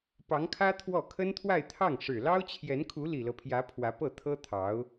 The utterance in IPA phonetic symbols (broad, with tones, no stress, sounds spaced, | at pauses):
p ɑ˧˥ ŋ kʰ ä˥ t̪ʰ w ɔ˥˩ kʰ ə˥ n t̪ʰ w a˥˧ ɪ̯ t̪ʰ ɑ˥˩ ŋ ʂ ɻ̩˨˩ l ɑ˥ ʊ̯ t͡ɕʰ j ɛ˧˥ n kʰ u˧˥ l i˨˩ l ɤ˦ pʰ j ä˧˥ pʰ w ä˧˥ p ɤ˥˩ t̪ʰ ɤ˥ t̪ʰ ɑ˧˥ ʊ̯